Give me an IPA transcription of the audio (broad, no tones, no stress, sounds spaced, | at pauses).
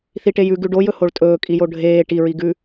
θ i ʈ e j ʉ ɡ ʉ ɖ o j ɵ h o ɭ tʼ ɵː kʼ i j o ɖʱ eː ʈ i ɹ i ɡ ʉ